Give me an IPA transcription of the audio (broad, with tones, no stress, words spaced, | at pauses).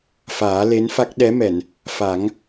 faː˨˩˦le˧˥nfa˦˥k̚ ɗɛ˧˥mɛ˨˩˨n | fa˨˩˦ŋ